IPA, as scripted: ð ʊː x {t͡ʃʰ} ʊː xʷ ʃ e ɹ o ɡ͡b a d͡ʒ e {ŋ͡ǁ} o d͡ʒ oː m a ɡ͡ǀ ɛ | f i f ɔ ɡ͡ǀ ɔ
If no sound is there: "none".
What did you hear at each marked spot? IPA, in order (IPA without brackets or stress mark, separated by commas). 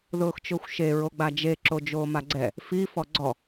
t͡ʃ, ǁ